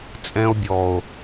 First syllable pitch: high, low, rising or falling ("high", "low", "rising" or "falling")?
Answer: high